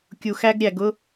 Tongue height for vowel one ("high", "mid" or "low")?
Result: high